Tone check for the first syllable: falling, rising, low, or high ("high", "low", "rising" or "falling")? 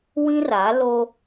high